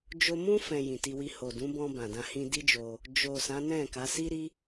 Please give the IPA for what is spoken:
d͡ʒo˧mũ˦ fɛ̃˧jĩ˨ti˧wi˧ ho˨dũ˨˦bɔ̃˧ bã˨dã˧ hĩ˧di˦d͡ʒo˧ | d͡ʒo˨ sã˨˦nɛ̃˦˨ka˨˦ si˦ɾi˦

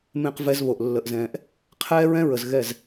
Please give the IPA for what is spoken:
mẽ˦q vɛ˦zβo˨ʔ lːə˨ʔzɛ̃ː˨ʔ | qʰɛː˦ɹɛ̃˦ɹə˨z ɣɛ˦˨z

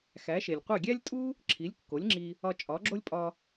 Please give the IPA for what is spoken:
xæ˩˥ʃe˩lʲqʷe˥˩ ɡʲæ˥lʲtʼu˥ | ǁʰi˩˥lʲkːo˩˥lʲŋ͡ǁi˧ | ɒ˧ t͡ʃʼɒ˩˥ɡ͡ǁo˥lʲ pʼɒ˧

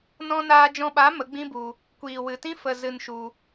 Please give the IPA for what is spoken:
nɔ̃˧naː˧d͡ʒɔ̃˧ɓa˨˦ mə˨˦ɡ͡bĩ˦bu˧ | kʷiː˨wɨ˨tĩ˦ fə˧zɨ˧nʃu˧

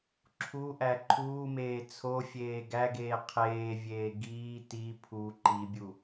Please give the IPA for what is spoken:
ǁʰuʔæ ǃʰuːmeː t͡sʰofʲeː ɡæɡeː qʰeːvʲeː ɡiː ti pʰu ǃibʲu

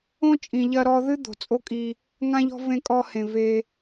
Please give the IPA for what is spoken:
õ˦ t͡ʃʼĩ˨ʎɐ˧ɾɔ˧ðɨ˦ d̪o̤˨t͡sʼo˦kʼi˧ | ŋã˦ʎɔ̤˦ vẽ˦kʼɔ˦hẽ˧ ve˧

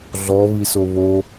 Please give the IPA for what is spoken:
ɮɔ βisoβo

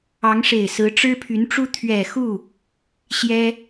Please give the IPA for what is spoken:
ɑ˧˥ŋʂe˨˩ɪ̯sɹ̩˧˥ ʈ͡ʂɻ̩˥pʰy˧˥nʈ͡ʂu˥ t̪ʰɥɛ˨˩xu˥˩ | ɕjɛ˥

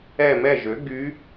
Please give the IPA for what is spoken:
ɛ˦˨mɛ˦˨ʒø˩˥ ɡy˧˥

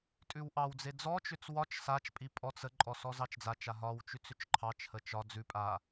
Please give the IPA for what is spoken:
tʼʉwʔɑwd͡ze d͡zɔt͡ʃʏt͡s wɒt͡ʃ sat͡ʃpʼi pʼɔt͡s əǃʼɔ sɔzɑt͡ʃd͡zat͡ʃa ɦɒwt͡ʃʉt͡s ʏt͡ʃǃʰɑt͡ʃhə t͡ʃɒ d͡zʉ pʼa

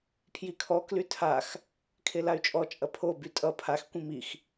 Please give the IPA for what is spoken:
pʰjikʰɔ klytʰax | kʰelay̯t͡ʃʼɔ t͡ʃʼɐpʰo bytʼʌ pʰax kʷĩmix

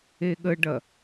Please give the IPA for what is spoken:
eɠəɖɐ

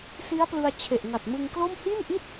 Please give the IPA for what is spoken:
si˦˥a̯plɯ˧a̯ t͡ɕʰe˨˩ʔŋa˨˩t̚mɯ˧ŋklo˥˩m hi˥˩nʔi˥˩t̚

